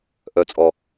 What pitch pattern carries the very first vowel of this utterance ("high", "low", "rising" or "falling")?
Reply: low